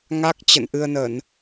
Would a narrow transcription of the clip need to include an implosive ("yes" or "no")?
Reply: no